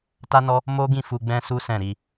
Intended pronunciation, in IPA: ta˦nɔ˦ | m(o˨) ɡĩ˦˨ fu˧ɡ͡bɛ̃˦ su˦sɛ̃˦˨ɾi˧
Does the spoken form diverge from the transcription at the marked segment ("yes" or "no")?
yes